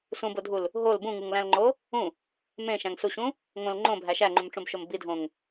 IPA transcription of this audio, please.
s ũ b o dʱ u l | ɦ o l b ũ ŋ u ŋ l æ̃ l ŋ͡ǃ o | ũ | m ẽ ʃ æ̃ ŋ s u ɕ ũ | ŋ õ l ŋ͡ǃ õ bʱ æ ʃ æ ŋ͡ǃ ũ m ʈ͡ʂ ũ b ʃ o m b i dʱ õ ŋ

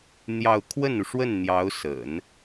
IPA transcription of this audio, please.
n̪ j ɑ˥˧ ʊ̯ kʰ w ə˥˩ n u˩ ʂ w ə˥˩ n n̪ j ɑ˧˥ ʊ̯ s ə̰˨˩˦ n

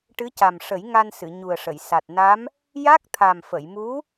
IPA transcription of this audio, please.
ʈ ɨ˧˥ c a˨˩ m ʂ ə˨˩˦ j ŋ a˧ n s ɨ˨˩˨ ɲ u˨˩ ə̯ ʂ ə˨˩˨ j s a˨˩ t̚ n a˧˥ m | j a˦˥ k̚ t̪ʰ a˨˩ m f ə˨˩˨ j m u˧˥

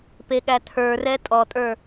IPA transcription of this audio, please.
p e ɠ æ tʰ ə˞ r ɛ tʼ ɔ tʼ ə˞

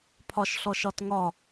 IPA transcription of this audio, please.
pʰ ɒ ʃ ɬ ɔ ʃ ɒ t ŋ ɒ

